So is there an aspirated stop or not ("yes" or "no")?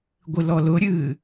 no